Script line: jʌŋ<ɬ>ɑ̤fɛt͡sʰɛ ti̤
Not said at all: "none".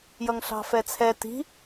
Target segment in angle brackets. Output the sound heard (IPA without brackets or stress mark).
ɬ